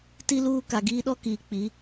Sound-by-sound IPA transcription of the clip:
t i˦ l uː˦ k a˨ ɡ iː˦ ɗ ɔ˦ k iː˨ k͡p i˨˦

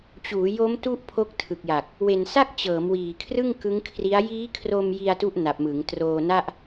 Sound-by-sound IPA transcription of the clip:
t͡ɕ uː˩˦ j o˦˥ m t u˦˥ ʔ pʰ o˦˥ k̚ tʰ ɯ˨˩ k̚ j a˨˩ k̚ | w e˨˩ n s a˥˩ k̚ t͡ɕ ɤː˩˦ m w iː˨˩ kʰ r ɯ˥˩ ŋ k ɯ˦˥ ŋ kʰ r i˦˥ a̯ j iː˦˥ kʰ r o˧ m j i˧ a̯ t u˦˥ ʔ n a˨˩ p̚ m ɯ˩˦ ŋ t r oː˧ n a˥˩ ʔ

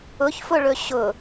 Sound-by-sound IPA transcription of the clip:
ʊ ç f ʊ ɭ ɵ ɕ ʊ

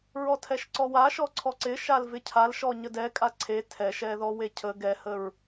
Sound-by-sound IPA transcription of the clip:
ɹ ɔ tʰ ɛ ʃ ǀ ɔ w a ʃ ɔ ǀʰ ɔ ǀ ɪ ʃ a l v ɪ cʰ a l ʃ ɔ ɲ ə d ɛ kʼ a ǀʰ e tʰ ɛ ʃ ɛ ð ɔ w e cʰ ə ɡ ɛ h ə ɹ

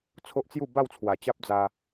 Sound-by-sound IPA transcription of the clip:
t͡sʰ o˦ ʔ t͡s j u˥˧ b a˥˧ w t͡sʰ w a˨˩ t͡ɕ a˦ p̚ d͡z a˧

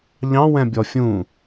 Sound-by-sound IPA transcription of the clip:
ʎ ɑ̃ w ɛ̃ bʲ ɔ fʲ ũ

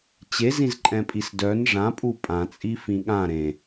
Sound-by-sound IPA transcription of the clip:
t͡ɕ e z ĩ z ǃʼ ɛ̃ pʼ i s d œ n ʐ ã pʼ u pʼ ã t͡sʼ i f ĩ ɠ ã ɾ ẽ

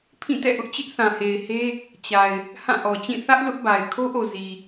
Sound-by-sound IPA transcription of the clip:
pʰ ĩ˦˨ t ɛ̰˦˨ ʔ ʊ˦ ʔ t͡ɕ ɪ˦ ʔ θ ã˨ h e˨ ɪ̯ h e˦ | t͡ɕ a˨ ɪ̯ | h ã˦˨ ʔ ɔ˨ t͡ɕ ĩ˦˨ θ ä˦ ʔ l ʊ˦ ʔ b a˨ ɪ̯ kʰ o˦ ʔ o˨ z i˨

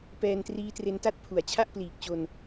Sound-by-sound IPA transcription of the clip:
p ɛː˧ n t r iː˦˥ t r e˦˥ n t a˥˩ t̚ pʰ u˩˦ a̯ t͡ɕʰ a˥˩ ʔ p l iː˨˩ k̚ t͡ɕ o˧ n

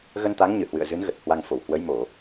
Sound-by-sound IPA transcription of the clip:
ɣ ə˧ n t̪ a˨˦ ŋ ɲ ɨ˧˩ h w ɨ̰˧˨ ə̯ z ɨ˨˦ n ɣ ə˨˩ t̚ h w a˧ ŋ f o˧˩ w h w ə˨˦ j m o˧˩˨

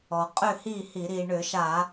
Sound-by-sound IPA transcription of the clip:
ɔ˩ qʼ ʏ˥˨ h i˥˨ h i˧˩˧ ɾ i˩ ɳ ʏ˧˩˧ ʃ a˧˩˧

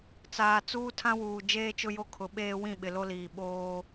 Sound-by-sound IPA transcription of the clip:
t͡s aː˨ t͡s uː˦ tʰ ã˦ w uː˨ d͡ʒ eː˦ t͡ʃ ʊ˦ j o˦ kʰ ʊ˨˦ ɓ eː˦ w ĩ˦˨ ɓ ɪ˨ l o˦ l iː˨ ɓ oː˦

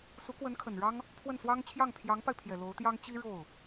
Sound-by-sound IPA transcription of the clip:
s u˧˥ k w ə˧˥ n kʰ ə˨˩ n ɻ ɑ˥ ŋ | pʰ w ə˥˩ n s w ɑ˥ ŋ t͡ɕʰ j ɑ˥˩ ŋ pʰ j ɑ˧˥ ŋ p a˧ ɪ̯ pʰ j ɛ˨˩ l o˧˥ ʊ̯ t̪ j ɑ˥ ŋ t͡ɕ i˥ ɻ o˥˩ ʊ̯

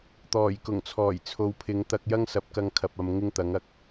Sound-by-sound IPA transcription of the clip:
t̪ ɔː˨˩ j k ʊ˨˩ ŋ t͡sʰ ɔː˨˩ j t͡sʰ o˨˧ w pʰ ɪ˨˧ ŋ t̪ ɐ˧ k̚ j ɐ˥ ŋ s ɐ˨˥ p̚ k ɐ˧ ŋ kʰ ɐ˨ p̚ ɐ˨ m ŋ ɪ˥ ŋ t̪ ɐ˨˥ ŋ ɐ˨˥ k̚

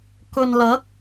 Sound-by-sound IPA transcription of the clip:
k ɵ˨ n l ɐ˨˥ k̚

